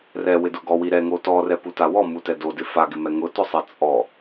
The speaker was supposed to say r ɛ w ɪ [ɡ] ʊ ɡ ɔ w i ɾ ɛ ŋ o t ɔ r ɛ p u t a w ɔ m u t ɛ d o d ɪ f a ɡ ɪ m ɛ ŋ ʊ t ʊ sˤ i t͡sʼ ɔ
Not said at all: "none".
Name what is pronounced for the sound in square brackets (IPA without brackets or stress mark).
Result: d